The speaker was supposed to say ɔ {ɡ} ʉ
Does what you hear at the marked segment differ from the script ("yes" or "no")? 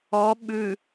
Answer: yes